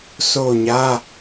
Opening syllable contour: falling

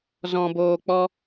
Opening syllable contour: low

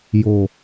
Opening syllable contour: low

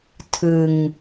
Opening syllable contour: low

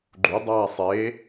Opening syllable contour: rising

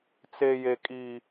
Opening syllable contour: high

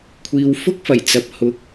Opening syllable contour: low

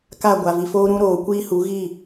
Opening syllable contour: falling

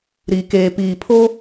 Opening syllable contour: low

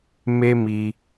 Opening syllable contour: high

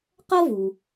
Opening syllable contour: high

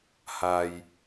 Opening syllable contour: low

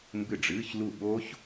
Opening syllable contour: falling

